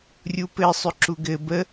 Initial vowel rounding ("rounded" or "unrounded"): rounded